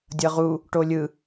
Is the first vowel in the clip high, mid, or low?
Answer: mid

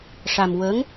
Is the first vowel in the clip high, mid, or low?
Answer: low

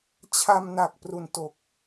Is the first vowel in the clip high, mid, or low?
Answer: low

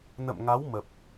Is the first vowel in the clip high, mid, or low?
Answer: mid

